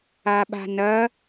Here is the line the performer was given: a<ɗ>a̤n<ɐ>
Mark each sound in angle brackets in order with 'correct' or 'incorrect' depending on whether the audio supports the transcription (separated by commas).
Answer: incorrect, correct